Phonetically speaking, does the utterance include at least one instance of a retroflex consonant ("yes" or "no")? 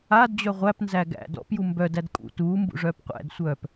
yes